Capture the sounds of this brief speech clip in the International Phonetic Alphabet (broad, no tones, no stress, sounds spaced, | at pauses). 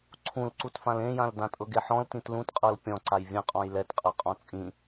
ǀʰ ũ l ǀ u t f ã l ẽ j ã l d ã tʼ ɤ ɡ e ħ ɔ̃ l t ĩ t l ũ t qʼ ɤ l pʲ ɔ̃ ǀ a j vʲ ɛ̃ qʼ ɔ̃ j l ɛ t qʼ a qʼ ɔ̃ t͡sʼ ĩ